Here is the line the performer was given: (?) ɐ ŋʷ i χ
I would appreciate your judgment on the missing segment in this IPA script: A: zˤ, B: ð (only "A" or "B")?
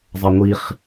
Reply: A